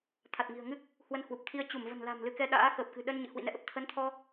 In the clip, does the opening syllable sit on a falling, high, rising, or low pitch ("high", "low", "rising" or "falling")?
low